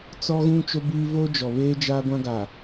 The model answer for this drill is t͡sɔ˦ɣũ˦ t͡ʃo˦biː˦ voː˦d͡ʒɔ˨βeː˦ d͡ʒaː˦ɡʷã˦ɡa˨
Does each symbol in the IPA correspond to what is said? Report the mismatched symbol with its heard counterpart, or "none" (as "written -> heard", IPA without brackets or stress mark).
none